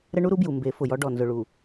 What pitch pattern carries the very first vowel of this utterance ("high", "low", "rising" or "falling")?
high